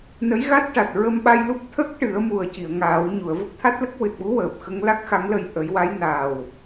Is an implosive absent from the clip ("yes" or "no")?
no